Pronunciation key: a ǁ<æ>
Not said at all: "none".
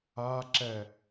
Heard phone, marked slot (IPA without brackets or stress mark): ɛ